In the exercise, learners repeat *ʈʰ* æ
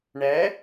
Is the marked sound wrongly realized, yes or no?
yes